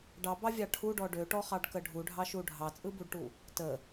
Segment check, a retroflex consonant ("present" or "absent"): present